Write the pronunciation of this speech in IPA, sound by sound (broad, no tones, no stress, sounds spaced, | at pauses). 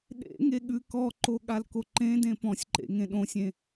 ɗ ḛ ŋ e ɠ ʉ k ɔ ǃ o ɠ a l k o ǃ ẽ d ẽ p ɔ̃ sʲ ǃ ḛ ŋ ẽ ɗ õ sʲ ẽ